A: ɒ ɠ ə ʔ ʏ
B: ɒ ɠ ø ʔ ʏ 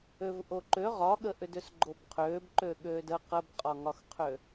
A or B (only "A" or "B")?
A